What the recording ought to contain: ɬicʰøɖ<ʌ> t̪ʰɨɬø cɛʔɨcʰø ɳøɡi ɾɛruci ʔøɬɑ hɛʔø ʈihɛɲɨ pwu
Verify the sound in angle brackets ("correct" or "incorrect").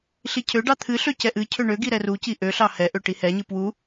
incorrect